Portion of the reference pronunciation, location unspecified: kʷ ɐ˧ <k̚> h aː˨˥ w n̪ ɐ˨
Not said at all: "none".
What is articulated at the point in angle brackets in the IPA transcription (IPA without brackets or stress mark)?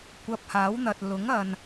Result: p̚